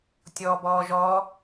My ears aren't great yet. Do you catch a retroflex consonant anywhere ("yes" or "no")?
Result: no